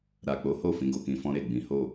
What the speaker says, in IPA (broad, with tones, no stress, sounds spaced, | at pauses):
ɾ a˨ k͡p o˨˦ h o˦˨ f ĩ˨˦ ɡ o˦˨ k ĩ˧ f ɔ̃˦ ɾ e˦˨ ɡ͡b ĩ˨˦ h o˦˨